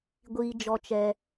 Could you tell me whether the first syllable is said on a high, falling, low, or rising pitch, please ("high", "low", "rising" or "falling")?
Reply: high